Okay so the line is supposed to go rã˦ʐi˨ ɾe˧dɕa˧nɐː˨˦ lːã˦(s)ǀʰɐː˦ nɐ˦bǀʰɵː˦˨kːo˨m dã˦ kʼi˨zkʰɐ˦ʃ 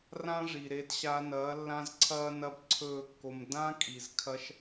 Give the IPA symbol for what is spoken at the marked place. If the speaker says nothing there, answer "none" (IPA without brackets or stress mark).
z